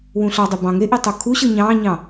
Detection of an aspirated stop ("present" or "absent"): present